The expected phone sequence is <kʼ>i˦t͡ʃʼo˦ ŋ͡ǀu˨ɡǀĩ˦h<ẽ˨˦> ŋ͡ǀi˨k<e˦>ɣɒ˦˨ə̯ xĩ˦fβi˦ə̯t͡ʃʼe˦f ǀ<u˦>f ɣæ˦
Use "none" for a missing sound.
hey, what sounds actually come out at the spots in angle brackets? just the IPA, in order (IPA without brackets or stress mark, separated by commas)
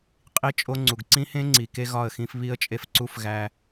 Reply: qʼ, ẽ˦, e˦, u˦